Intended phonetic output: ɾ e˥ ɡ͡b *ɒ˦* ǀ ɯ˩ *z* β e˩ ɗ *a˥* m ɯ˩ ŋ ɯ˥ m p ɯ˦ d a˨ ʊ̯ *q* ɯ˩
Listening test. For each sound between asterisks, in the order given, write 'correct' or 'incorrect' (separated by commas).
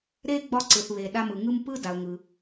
correct, incorrect, incorrect, incorrect